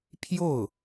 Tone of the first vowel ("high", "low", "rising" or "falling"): falling